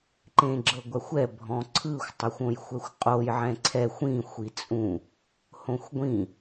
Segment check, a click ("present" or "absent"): present